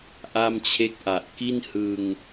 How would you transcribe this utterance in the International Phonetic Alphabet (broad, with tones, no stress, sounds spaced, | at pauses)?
ʔ a˥˩ m t͡ɕʰ e˥˩ k̚ ʔ a˨˩ ʔ k i˥˩ n h ɯ˧ ŋ